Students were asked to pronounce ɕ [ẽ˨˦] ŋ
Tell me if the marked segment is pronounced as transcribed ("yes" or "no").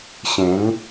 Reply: yes